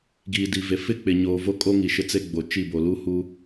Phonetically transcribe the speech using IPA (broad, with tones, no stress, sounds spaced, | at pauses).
ɡ iː˨ d i˨ v e˨ f ɪ˦ k͡p ɪ˨ ɲ oː˨ v o˦ kʼ o˦ ŋ i˨ ʃ ɪ˦ t͡s e˦ ɡ͡b o˨ t͡ʃ i˦˨ b o˨ l u˦ h u˦